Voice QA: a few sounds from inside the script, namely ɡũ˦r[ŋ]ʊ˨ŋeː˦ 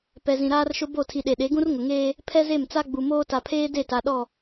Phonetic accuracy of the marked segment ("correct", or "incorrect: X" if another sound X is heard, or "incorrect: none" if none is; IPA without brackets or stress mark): correct